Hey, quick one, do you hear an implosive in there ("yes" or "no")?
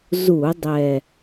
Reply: no